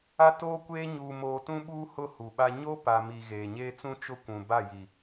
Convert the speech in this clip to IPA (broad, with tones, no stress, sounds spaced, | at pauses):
a˦ t oː˦ kʷ eː˦ ɲ uː˨ m oː˨ t ũ˦ ɓ uː˦ h ʊ˦ h u˨ ɓ a˦ ɲ o˦ p a˨ m i˨ ɣ eː˨ ɲ eː˦ t͡s ũ˦ t͡ʃ ʊ˦ kʷ ũ˨ b a˦˨ j i˨